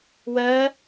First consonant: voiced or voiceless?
voiced